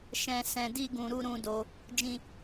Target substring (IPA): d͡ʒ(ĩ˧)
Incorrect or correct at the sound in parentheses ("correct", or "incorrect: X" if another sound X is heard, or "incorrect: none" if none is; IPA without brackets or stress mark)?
incorrect: ĩ˦